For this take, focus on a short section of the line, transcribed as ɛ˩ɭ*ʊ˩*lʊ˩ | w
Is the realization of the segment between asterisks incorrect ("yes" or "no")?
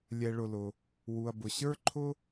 no